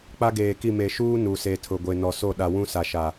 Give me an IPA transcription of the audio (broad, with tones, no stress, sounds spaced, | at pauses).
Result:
k͡p a˦ ɡ eː˨ k i˦˨ m e˨ ʃ uː˦ n u˨ s e˨ tʰ ʊ˨ ɡʷ e˨ n ɔ˨ s o˦˨ ɗ a˨ w ũ˦ s a˨ ʃ a˨